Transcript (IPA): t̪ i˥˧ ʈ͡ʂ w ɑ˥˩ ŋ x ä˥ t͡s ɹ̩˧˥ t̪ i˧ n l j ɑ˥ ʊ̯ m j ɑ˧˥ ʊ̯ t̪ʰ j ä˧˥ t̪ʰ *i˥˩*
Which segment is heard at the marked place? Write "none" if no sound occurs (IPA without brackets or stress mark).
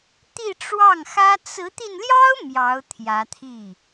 i˥˩